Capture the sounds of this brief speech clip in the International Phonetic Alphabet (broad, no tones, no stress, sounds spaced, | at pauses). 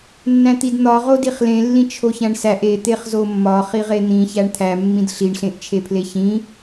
nː æ̃ t̪ i d n̪ ɒ ʁ o d i χ l ẽ lː ĩ t͡ʃʰ o ç æ̃ ɳ s æ ʔ e t̪ e χ z o mː ɒ χ i ʁ e n̪ ĩ ç æ ɳ t̪ʰ æ mː ĩ d ɬ i ɳ ɬ ẽ ʔ t͡ʃʰ e pʰ l e ç ĩ